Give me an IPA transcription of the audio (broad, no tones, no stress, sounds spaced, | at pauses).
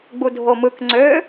ɡ͡b u dʱ o m ɯ k ŋ͡ǀ ø